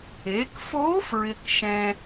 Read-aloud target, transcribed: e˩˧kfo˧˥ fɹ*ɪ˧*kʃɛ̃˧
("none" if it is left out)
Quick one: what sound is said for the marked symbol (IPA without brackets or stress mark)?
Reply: ɪ˧